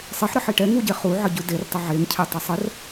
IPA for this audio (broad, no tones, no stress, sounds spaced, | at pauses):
sˤ ɪ ħ ɾ ə ħ i ʈ ɛ ŋ u ɟ e χ u ʕ ə ɟ ʉ d e r tˤ ɪ ʕ e ŋ cʰ ɛ tˤ e sˤ ə r